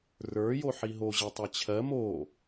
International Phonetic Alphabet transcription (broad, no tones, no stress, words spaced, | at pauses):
rə˞ joħiɦo ʑetˤet͡ɕʰɜ mo